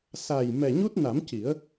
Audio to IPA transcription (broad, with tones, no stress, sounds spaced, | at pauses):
s a˨˩ j m ɛ˨˩ ɲ u˦˥ t̚ n a˨˩˦ m c i˨˩˦ ə̯